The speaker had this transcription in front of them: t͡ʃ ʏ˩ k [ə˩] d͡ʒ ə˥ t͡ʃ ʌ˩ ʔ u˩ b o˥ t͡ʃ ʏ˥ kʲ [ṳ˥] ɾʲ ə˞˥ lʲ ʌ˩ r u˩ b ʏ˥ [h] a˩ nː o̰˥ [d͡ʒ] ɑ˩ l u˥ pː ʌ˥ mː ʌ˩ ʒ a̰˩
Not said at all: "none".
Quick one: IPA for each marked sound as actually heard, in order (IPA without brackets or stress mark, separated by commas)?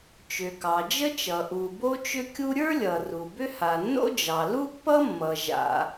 ɑ˩, u˥, h, d͡ʒ